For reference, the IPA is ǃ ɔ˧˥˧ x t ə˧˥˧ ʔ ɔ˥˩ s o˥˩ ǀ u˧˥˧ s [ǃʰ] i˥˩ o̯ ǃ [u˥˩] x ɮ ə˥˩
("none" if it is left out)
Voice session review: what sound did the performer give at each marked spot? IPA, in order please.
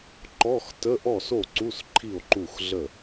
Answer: ǃʰ, u˥˩

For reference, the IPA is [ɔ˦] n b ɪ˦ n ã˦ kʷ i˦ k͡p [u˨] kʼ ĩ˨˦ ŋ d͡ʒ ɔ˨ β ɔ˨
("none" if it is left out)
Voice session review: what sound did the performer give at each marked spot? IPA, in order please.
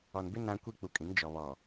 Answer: ɔ˨, u˨

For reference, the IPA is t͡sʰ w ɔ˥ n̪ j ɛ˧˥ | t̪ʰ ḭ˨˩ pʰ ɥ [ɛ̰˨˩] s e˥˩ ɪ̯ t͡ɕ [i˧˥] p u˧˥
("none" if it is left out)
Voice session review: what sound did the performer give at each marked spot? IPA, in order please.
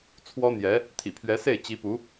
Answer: ɛ˧˥, i˧˥

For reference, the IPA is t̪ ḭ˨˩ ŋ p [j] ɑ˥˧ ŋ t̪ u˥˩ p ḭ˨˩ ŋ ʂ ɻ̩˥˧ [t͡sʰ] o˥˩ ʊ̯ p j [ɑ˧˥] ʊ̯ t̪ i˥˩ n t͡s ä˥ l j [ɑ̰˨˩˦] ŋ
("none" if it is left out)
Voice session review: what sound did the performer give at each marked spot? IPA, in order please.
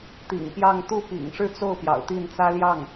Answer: j, t͡s, ɑ̰˨˩, ɑ˥˩

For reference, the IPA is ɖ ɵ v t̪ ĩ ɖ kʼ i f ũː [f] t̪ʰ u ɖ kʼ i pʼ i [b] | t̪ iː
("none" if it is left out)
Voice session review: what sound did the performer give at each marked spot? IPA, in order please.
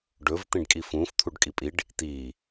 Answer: f, ɖ

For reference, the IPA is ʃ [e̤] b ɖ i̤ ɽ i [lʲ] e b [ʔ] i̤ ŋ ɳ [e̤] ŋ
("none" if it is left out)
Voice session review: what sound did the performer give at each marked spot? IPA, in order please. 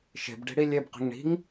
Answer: e̤, lʲ, q, i̤

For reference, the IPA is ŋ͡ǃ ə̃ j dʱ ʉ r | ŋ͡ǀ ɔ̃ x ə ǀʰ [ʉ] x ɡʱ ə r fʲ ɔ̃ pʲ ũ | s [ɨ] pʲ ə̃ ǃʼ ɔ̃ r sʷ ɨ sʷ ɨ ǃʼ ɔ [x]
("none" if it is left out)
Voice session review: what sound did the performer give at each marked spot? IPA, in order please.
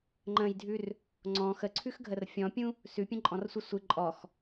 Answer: ʉ, ʉ, x

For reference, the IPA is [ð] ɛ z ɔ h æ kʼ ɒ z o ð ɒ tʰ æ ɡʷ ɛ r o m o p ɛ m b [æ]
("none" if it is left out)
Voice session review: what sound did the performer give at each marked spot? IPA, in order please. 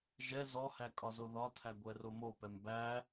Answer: ʒ, æ

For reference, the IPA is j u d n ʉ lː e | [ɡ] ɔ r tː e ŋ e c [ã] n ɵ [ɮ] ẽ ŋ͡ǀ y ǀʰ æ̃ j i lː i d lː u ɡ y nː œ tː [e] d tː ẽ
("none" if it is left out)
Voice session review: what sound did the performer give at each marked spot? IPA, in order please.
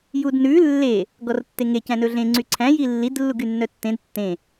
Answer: ɡ, æ̃, ɮ, ẽ

